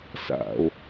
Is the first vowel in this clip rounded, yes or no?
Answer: no